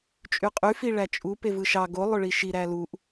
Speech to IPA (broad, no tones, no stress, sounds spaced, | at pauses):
t͡ʃʼ y qʼ y f i ɭ æ t͡ʃʼ u p e v ɯ ʃ ɑ ɡ o lˠ ø ɭ i ʃ i ɾ æ l u ʔ